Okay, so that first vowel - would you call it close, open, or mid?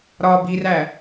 open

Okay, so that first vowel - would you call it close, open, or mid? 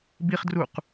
close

